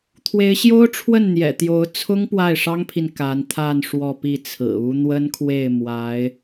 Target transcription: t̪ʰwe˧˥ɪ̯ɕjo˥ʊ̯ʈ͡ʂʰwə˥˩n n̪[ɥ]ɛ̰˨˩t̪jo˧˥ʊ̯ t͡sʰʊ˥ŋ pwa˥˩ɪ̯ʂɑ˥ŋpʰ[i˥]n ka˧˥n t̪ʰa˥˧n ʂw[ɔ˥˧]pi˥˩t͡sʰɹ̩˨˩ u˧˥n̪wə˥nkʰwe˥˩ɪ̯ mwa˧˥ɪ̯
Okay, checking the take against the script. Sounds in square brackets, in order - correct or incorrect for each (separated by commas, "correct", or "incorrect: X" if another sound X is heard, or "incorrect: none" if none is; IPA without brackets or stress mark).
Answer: incorrect: j, incorrect: i˨, correct